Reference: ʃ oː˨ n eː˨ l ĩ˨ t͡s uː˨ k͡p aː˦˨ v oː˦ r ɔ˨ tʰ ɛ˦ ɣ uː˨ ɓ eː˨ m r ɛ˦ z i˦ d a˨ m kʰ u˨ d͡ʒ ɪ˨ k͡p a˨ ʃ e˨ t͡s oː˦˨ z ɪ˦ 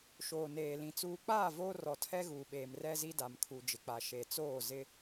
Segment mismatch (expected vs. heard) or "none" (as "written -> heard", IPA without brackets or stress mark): none